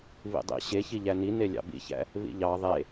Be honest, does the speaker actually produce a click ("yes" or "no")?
no